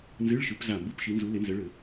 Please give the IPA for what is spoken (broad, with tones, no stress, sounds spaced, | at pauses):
n z ɨ˧˥˧ ɭ ʃ ɨ˨˦ p z a˧˩ m b u˧˥˧ p ʃ i˨˦ n z u˨˦ l e˨˦ n z ɘ˨˦ ɭ ɘ˧˩˧